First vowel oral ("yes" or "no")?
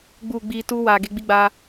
yes